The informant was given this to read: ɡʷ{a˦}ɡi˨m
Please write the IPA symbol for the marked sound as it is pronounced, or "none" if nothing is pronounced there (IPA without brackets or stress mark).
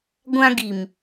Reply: ã˦